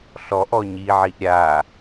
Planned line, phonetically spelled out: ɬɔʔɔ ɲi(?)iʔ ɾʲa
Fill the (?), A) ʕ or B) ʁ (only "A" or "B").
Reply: A